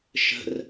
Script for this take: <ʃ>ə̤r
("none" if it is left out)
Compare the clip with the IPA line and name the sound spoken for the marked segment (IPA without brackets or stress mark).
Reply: ʃ